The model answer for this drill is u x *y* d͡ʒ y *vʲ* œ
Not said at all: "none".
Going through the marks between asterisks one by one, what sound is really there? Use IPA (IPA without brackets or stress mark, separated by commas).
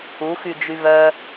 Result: y, v